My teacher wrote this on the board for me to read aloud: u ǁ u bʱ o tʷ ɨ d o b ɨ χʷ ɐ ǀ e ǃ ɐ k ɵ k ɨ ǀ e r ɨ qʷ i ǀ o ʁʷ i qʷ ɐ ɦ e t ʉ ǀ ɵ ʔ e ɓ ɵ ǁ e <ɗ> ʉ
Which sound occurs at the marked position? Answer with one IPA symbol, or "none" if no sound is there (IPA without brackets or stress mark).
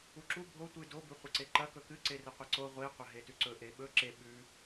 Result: ɓ